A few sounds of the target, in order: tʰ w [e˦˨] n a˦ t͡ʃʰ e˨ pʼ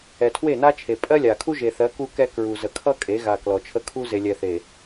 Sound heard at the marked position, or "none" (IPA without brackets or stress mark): e˦˨